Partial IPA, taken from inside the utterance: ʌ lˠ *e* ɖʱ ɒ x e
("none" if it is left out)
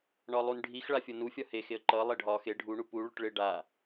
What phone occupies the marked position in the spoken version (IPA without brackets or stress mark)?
e